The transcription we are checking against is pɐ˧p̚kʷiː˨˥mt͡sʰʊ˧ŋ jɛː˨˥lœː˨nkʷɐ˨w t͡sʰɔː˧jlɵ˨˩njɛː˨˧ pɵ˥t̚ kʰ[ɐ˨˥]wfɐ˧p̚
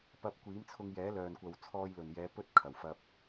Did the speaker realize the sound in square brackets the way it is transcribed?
no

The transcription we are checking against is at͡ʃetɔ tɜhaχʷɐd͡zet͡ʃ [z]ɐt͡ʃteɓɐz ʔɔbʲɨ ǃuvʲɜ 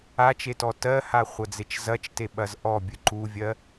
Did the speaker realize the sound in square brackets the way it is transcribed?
yes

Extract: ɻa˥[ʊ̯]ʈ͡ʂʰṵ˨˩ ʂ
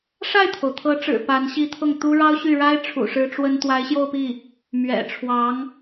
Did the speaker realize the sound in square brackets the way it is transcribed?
no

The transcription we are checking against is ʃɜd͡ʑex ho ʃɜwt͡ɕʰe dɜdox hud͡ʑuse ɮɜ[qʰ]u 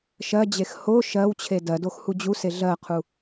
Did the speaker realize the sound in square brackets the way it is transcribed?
yes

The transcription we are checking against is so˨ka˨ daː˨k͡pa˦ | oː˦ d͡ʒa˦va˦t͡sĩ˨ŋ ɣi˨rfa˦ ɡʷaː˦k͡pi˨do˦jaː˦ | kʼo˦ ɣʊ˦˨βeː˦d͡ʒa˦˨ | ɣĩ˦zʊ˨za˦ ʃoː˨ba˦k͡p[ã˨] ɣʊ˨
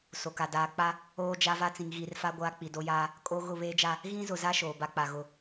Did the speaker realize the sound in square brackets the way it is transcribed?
no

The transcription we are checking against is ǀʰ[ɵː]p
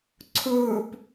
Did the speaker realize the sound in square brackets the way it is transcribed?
yes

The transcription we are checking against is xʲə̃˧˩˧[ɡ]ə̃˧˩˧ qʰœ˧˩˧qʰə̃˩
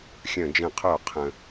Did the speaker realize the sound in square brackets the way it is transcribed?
no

